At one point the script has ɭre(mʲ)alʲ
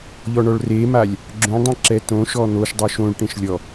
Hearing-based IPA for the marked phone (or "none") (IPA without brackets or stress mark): m